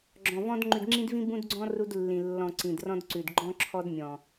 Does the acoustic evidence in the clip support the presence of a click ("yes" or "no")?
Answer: yes